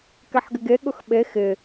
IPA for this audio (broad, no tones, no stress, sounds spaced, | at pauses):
k ɛ ħ ɡ ɪ ɡ e ɠ ʊ x ɓ e x ɪ